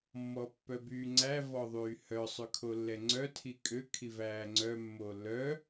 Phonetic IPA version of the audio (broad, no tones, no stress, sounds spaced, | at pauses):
mː ɔ pː œ b yː ŋ͡ǀ æ v ɔ ðˤ yː h œ sˤ ʉ kʰ o lː ɛ ŋ͡ǀ œ tʰ i kʼ ø kʰ i v æː ŋ͡ǀ œ mː o lː œ